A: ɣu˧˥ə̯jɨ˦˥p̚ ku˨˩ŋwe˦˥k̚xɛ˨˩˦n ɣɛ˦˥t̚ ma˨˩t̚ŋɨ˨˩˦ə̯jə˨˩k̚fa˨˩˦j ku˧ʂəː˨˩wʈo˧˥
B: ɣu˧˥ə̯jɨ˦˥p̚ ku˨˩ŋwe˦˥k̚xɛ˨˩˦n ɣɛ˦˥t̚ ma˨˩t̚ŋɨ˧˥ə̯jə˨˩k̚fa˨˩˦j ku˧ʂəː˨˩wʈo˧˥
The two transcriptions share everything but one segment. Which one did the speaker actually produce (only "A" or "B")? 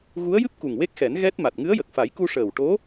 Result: B